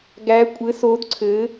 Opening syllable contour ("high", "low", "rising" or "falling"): rising